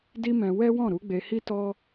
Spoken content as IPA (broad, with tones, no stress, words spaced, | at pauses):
di˦mɛ̃˧ wɛ˦wɔ̃˦˨ɾu˨˦ ɡ͡be˧hi˦ tɔ˦